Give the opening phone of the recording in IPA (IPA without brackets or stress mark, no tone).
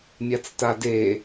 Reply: mʲ